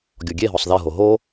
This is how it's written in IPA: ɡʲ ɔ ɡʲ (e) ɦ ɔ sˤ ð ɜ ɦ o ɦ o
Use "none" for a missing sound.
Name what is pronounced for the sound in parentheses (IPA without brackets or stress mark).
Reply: e